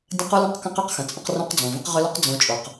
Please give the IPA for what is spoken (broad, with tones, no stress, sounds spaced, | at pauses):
dʲ ə̃˦ q u˦ l ə̃˦ q k ə̃˦ q ʏ˦ q x ə̃˨ t͡sʼ ə̃˦ q r õ˦ q d͡z õ˨ v ə̃˦ q ʁ ʏ˦ l u˦ q d͡z õ˦ t͡ʃʼ o˨ q